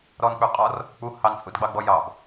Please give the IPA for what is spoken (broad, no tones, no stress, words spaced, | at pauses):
ɾɔnk͡pʉqʼɔr | k͡pu hɑnt͡sʼudɡ͡bɑɡ͡bɔ jɑb